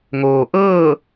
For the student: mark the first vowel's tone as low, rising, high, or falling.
low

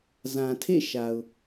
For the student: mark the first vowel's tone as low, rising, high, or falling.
low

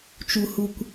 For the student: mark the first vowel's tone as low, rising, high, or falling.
low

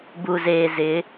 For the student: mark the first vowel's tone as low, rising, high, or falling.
low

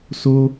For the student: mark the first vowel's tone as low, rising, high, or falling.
high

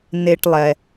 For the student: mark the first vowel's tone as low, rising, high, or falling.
high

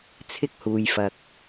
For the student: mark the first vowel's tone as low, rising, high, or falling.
high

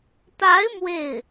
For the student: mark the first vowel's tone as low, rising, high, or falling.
rising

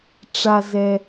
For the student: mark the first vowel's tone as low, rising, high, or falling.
high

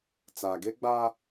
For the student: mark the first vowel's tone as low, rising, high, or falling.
low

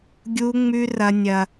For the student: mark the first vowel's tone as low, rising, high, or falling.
high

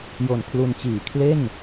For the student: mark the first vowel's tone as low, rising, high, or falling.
low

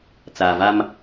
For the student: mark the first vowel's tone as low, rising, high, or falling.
low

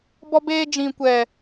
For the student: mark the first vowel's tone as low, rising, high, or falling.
high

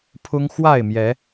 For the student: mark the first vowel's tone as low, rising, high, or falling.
high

